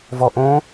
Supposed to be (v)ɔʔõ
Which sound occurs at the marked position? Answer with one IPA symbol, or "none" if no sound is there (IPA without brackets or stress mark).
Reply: v